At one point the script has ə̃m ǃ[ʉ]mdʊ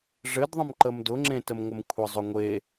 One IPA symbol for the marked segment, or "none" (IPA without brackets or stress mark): ə